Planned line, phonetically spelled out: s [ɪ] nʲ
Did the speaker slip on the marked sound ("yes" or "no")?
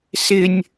no